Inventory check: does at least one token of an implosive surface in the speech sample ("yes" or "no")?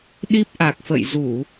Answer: yes